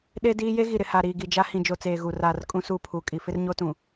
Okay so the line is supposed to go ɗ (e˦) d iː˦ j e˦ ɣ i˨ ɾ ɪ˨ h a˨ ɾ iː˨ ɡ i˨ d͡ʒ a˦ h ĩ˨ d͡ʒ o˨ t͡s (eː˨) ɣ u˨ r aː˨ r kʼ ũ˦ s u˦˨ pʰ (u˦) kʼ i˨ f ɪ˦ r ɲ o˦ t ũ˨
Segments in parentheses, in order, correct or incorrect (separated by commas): correct, correct, incorrect